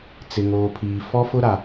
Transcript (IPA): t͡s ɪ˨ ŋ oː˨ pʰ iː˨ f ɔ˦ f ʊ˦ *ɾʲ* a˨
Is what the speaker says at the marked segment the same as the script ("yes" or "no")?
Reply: no